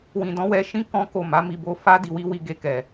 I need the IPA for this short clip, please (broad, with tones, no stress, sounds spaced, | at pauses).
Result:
w ĩ˨ d ɔ̃˨˦ w ɛ˧ ʃ ĩ˦ k ɔ̃˦ k o˦˨ m a˨˦ m i˧ b o˧ f a˦ d i˧ w i˦ w i˧ ɡ e˧ k ɛ˨